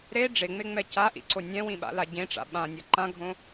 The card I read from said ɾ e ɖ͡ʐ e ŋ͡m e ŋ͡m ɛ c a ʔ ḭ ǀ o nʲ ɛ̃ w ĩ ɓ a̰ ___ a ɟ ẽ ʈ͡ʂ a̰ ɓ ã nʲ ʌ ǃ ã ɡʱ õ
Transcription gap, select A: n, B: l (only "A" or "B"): B